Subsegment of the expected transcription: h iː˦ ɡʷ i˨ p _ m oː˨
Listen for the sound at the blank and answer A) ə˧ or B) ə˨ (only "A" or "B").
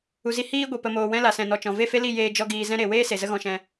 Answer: B